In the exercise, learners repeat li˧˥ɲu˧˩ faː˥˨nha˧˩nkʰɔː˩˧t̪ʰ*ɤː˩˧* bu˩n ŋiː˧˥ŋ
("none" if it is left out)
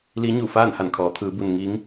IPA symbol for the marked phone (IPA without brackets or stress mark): ɯː˩˧